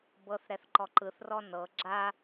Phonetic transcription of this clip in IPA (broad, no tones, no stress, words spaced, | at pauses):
bɤθ ɾɛθǃɔǃɯθ rɔnɤ ɡ͡ǁa